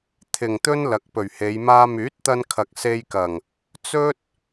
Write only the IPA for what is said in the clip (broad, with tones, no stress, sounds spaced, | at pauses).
t̪ʰ ɪ˨ ŋ t̪ ɵ˥ n l ɐ˨˥ k̚ p ɵ˨˩ ɥ h e˨˧ j m aː˥ m yː˨˥ t̚ t̪ ɐ˧ n kʰ ɐ˨ k̚ s e˧ j k ɐ˨˩ ŋ | t͡s ɵ˥ t̚